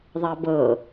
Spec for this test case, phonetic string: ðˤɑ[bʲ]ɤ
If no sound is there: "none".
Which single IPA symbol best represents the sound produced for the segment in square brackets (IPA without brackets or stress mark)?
b